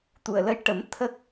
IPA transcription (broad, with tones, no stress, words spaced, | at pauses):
t̪u˨˩ə̯lə˧jʈə˨˩˦m t̪ʰə˦˥k̚